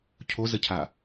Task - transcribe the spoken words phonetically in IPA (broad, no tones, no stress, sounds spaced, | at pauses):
cʰ o z ə cʰ a